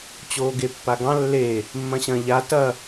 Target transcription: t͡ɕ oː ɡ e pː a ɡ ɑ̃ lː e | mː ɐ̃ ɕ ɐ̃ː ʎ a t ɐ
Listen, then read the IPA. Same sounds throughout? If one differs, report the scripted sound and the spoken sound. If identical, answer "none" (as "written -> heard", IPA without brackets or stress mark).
none